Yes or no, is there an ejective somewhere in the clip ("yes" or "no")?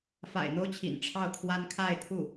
no